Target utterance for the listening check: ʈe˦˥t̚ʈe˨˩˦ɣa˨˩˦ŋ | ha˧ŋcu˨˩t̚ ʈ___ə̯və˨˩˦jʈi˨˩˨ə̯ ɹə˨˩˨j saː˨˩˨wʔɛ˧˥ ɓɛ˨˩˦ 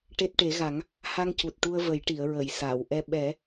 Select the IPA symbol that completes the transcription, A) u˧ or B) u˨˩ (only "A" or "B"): A